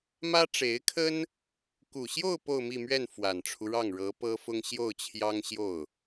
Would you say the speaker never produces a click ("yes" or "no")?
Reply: yes